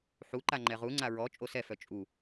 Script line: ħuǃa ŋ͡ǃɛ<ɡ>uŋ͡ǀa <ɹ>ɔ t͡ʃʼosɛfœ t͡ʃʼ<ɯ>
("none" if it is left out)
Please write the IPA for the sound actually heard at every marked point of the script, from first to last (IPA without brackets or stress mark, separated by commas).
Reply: ʁ, ɹ, u